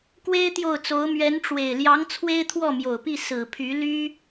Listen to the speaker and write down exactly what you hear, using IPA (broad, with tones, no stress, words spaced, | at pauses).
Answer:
kwe˥ɪ̯t̪jo˥˩ʊ̯t͡so˧˥ʊ̯ mɥɛ˧˥nʈ͡ʂwe˨˩ɪ̯ ljɑ˧˥ŋ t͡sʰwe˥ɪ̯t̪ʰwɔ˥˩ mjo˨˩ʊ̯pi˥˩ sɹ̩˨˩pʰy˧˥ly˥